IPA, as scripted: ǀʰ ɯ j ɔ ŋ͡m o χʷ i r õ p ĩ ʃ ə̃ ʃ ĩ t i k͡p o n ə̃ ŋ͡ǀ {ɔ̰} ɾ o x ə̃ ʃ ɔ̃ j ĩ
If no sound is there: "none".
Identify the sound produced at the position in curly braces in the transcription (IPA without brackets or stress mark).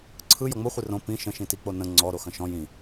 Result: ɔ